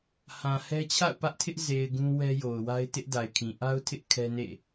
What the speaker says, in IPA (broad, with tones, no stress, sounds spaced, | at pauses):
h ã˨ h ɛ˦ t͡ɕʰ a̰˦˨ ʊ̯ p ä˦ ʔ tʰ ɪ˦ ʔ z e˨ ɪ̯ ɡ ũ˦ w ɛ˦ j o˨ ʊ̯ w a˦ ɪ̯ t ɪ˦ ʔ d a˨ ɪ̯ kʰ ĩ˨ ʔ a˦ ʊ̯ tʰ ɪ˦ ʔ kʰ ɛ˦ n ḛ˦˨